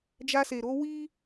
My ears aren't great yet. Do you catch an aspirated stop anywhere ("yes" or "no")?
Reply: no